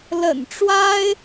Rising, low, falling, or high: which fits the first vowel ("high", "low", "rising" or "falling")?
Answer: low